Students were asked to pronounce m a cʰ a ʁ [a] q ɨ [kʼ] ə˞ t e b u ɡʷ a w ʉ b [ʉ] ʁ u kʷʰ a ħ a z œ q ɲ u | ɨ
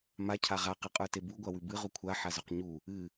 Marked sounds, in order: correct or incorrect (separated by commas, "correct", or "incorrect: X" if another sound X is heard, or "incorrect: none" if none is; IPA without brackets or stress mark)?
correct, incorrect: qʼ, incorrect: ɨ